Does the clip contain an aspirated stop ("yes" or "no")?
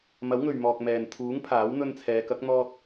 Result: yes